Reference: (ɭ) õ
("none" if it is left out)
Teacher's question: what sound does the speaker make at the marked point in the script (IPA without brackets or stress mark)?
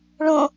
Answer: ɭ